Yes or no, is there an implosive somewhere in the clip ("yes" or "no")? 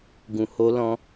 no